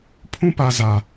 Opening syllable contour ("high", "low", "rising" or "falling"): high